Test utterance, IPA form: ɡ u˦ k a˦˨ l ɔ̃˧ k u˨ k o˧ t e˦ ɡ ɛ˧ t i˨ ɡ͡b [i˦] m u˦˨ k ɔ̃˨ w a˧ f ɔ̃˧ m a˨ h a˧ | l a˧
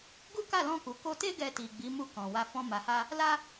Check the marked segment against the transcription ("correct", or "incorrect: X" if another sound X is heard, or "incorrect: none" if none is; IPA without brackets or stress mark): incorrect: i˨˦